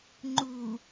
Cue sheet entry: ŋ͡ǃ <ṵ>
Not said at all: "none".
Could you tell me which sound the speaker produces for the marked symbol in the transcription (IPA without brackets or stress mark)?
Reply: u